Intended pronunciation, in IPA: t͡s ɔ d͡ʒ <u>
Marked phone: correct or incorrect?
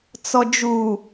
correct